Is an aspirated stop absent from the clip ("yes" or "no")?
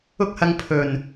no